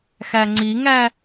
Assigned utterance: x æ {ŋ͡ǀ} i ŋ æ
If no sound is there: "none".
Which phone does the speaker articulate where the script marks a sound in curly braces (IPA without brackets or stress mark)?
ŋ͡ǀ